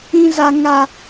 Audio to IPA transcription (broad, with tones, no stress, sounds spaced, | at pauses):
ĩ˦ z a˦ ŋ a˦